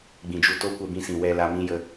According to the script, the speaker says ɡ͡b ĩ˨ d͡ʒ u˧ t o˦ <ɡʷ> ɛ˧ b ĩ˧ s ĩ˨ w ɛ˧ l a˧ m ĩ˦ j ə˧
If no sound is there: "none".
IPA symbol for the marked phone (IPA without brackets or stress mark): kʷ